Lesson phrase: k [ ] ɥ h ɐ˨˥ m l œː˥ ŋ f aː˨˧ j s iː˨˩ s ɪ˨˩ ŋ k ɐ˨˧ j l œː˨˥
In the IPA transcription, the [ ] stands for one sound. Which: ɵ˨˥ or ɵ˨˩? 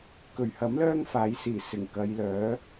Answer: ɵ˨˩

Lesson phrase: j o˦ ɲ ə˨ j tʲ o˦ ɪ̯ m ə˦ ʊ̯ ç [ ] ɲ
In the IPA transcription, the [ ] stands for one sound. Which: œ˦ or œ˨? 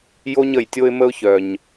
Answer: œ˨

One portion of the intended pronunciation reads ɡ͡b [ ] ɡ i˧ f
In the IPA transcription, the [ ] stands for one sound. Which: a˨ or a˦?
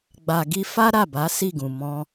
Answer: a˨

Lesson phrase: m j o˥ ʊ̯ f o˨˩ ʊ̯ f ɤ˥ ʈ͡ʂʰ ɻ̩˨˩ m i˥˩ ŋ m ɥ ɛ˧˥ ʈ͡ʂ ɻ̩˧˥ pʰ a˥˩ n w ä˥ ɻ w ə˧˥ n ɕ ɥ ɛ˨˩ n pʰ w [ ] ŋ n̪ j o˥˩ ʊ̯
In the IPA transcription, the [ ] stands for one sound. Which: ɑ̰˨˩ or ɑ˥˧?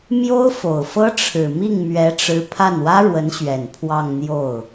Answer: ɑ˥˧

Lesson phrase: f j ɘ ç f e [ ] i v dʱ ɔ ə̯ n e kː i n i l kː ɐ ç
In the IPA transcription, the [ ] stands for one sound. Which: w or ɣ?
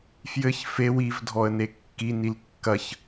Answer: w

